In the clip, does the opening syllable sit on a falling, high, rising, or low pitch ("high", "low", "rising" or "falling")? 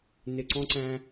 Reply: low